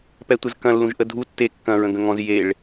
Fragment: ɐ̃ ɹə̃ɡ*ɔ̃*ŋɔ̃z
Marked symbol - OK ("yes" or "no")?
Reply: no